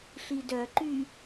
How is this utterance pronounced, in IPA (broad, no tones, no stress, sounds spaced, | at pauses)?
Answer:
ɬ i d œ ǃ y